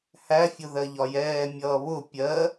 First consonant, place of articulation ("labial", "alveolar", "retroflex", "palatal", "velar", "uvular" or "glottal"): glottal